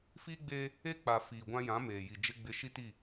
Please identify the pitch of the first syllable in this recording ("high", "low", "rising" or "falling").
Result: high